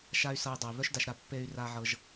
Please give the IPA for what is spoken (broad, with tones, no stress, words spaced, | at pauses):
ʃa˦y̯sɤ˧i̯dˤɤ˨i̯ βœ˦ʃda˧ʃɾa˧ pːe˧y̯ra˧ ʕɤ˧ʒ